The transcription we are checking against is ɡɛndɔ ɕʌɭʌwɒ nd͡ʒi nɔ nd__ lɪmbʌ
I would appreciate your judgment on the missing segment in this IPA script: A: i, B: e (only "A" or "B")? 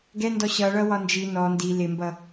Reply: A